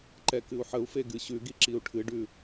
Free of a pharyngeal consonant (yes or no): no